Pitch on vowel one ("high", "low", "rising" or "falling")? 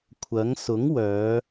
rising